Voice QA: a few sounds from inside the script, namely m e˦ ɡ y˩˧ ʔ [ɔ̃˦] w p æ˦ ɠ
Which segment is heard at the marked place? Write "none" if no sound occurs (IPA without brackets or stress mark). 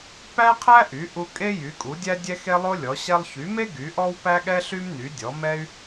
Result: ɔ˦